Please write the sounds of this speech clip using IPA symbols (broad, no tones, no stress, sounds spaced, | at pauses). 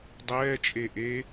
dˤ ɛː t͡ʃʼ e ʔ e